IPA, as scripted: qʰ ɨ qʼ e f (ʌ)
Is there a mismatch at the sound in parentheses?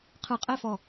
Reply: yes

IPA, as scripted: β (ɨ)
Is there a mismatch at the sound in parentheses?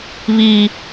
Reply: yes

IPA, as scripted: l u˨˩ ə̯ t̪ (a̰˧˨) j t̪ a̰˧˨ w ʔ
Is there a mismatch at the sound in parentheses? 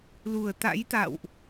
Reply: yes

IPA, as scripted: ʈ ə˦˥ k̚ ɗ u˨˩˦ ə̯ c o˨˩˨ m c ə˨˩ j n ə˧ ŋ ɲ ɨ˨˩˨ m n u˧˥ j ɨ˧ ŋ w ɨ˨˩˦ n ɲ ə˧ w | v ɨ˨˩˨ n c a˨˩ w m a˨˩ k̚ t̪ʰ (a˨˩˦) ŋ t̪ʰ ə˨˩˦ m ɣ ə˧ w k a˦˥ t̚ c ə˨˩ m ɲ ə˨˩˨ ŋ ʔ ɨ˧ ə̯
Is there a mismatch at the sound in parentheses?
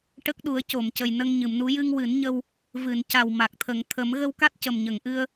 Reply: yes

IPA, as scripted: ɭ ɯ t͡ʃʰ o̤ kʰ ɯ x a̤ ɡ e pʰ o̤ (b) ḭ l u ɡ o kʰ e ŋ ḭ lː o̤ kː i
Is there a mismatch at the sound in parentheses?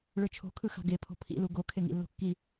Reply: yes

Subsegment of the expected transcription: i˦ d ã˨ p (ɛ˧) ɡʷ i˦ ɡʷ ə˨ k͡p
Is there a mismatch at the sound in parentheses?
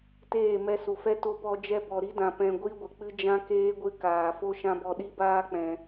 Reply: yes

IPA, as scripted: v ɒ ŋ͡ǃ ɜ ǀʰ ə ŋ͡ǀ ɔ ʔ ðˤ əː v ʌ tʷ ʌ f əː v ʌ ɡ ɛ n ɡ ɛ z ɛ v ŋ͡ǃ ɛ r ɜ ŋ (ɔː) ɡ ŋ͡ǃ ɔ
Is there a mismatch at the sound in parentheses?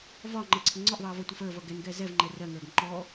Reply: yes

